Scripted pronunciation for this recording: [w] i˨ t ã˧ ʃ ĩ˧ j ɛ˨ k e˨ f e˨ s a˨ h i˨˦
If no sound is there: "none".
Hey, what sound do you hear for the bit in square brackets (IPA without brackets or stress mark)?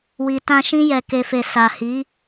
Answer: w